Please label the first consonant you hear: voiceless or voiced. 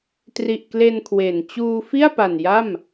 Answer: voiceless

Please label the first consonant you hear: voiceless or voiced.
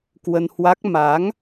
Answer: voiceless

